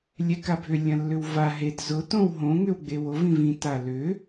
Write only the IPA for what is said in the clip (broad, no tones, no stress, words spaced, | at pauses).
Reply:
lʲɛkabʱʏ lʲɐ̃lːʏwva ɦed zʊ tõwɦõ ŋʏwɡ͡bewov ĩvĩ talʏ